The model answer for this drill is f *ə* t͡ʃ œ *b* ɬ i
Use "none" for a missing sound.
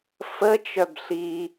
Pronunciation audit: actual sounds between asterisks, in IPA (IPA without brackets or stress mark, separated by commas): ə, b